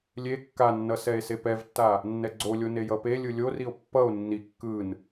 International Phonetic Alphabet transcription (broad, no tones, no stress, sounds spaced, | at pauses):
lʲ e kː a nː ʌ s ɛ e̯ s e p ɛ v tː a | nː ɛ ɡ͡ǀ o lʲ o n e j ʌ p e lʲ ɯ lʲ o r i o̯ pː ʌ o̯ nː i kː ɯ n